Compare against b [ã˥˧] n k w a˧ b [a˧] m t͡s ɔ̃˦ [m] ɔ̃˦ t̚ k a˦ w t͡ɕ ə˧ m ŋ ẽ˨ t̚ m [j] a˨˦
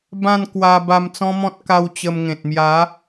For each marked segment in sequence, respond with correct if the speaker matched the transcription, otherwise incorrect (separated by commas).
correct, correct, correct, correct